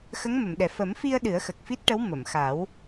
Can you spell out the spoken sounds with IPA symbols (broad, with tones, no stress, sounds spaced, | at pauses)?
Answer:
x ə˧˥ ŋ m ə˨˩˨ m ɗ ɛ˨˩ f ə˨˩˦ m f i˧ ə̯ ɗ ɨ˨˩˦ ə̯ x ə˨˩ k̚ f i˦˥ t̚ ʈ ə˧˥ w m ə˨˩˨ m x a˨˩˦ w